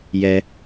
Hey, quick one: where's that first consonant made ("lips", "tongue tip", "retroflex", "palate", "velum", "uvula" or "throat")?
palate